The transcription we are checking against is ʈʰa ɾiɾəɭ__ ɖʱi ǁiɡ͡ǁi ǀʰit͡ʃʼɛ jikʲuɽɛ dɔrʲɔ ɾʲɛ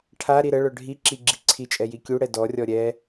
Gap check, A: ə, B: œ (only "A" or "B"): B